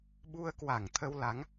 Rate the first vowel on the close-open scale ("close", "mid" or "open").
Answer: close